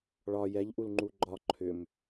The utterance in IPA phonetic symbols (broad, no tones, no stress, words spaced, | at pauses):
ɭɒ jɛʎʔulŋ͡ǃu ɡ͡ǃɒ ǃʰʏm